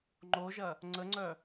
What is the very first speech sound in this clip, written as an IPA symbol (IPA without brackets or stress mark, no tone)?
ŋ͡ǃ